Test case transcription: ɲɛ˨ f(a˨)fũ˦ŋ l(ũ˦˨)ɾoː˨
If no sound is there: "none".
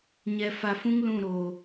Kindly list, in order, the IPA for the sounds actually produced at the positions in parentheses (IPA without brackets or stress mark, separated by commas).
a˨, ũ˦˨